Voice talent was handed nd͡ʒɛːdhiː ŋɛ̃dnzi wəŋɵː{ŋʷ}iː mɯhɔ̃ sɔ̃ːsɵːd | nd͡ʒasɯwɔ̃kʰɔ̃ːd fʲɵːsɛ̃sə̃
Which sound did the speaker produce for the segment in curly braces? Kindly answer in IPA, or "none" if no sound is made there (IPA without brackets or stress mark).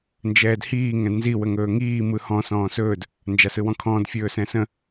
ŋ